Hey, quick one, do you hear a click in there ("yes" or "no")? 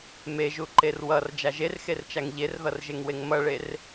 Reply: yes